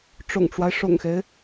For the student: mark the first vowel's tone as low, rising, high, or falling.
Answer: low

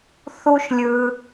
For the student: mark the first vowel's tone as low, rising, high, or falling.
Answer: high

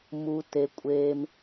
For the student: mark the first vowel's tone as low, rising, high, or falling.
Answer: low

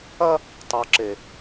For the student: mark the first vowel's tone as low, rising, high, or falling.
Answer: high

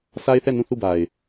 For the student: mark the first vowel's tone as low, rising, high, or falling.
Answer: high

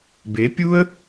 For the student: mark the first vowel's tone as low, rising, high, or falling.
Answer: rising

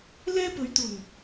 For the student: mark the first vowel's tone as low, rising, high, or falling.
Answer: high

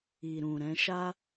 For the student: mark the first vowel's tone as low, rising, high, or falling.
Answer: low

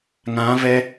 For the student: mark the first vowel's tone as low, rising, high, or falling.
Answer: rising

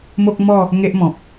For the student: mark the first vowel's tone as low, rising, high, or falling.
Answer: high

